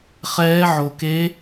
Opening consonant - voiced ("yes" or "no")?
no